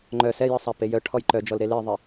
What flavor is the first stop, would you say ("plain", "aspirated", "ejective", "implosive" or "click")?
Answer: click